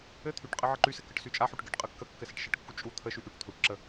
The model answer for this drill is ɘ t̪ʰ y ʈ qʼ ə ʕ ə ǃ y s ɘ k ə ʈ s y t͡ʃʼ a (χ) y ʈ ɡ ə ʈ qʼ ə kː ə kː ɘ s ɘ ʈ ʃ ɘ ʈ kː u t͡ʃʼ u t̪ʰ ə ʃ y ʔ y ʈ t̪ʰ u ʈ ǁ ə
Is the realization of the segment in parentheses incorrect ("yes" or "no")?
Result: yes